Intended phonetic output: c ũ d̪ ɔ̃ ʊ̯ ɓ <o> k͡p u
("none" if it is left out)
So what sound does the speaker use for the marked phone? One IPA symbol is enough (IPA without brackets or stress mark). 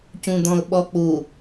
ɔ